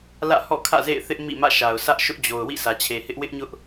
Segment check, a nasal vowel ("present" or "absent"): absent